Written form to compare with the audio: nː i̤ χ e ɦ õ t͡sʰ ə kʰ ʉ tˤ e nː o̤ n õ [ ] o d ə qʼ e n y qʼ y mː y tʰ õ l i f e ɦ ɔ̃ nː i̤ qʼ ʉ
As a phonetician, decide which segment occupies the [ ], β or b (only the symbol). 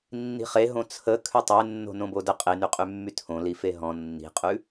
b